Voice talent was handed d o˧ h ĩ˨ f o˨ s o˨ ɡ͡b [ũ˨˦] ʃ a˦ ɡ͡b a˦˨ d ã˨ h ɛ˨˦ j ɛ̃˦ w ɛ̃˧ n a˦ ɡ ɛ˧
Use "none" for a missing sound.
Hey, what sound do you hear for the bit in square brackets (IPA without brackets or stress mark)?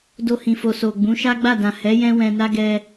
ũ˨˦